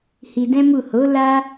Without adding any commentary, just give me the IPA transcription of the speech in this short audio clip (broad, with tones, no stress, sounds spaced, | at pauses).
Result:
h i˧ d ɛ̃˦ m u˦˨ h o˨˦ l a˦